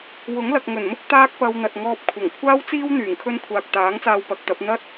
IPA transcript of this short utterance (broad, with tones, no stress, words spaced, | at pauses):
wʊ˨˥ŋlɐ˨k̚ ŋɵ˨˩nmʊ˥k̚ t̪aː˥k̚pɐ˧wn̪ɐ˨t̚ ŋɔː˧p̚kʷʰɐ˨˩ŋ kʷʰaː˥wt͡siː˥w n̪yː˨˩ŋkʰɵ˥n kʷʰaː˨k̚t̪aː˨˥ŋt͡saː˧w pɐ˨˥k̚t̪ɐ˨˥p̚ n̪ɐ˥t̚